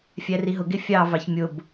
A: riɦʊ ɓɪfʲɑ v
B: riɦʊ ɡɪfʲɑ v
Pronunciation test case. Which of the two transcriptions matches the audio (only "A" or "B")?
B